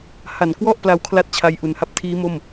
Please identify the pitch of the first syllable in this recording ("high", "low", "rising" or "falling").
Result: low